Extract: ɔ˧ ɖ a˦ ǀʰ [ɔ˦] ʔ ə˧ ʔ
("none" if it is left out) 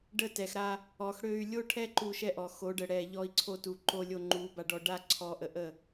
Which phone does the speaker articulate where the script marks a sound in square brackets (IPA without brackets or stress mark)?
ɔ˧